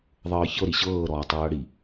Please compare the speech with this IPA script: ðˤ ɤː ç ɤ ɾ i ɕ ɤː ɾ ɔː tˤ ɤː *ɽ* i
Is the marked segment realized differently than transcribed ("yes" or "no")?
no